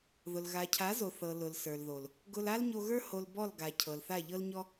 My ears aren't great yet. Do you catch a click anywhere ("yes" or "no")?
no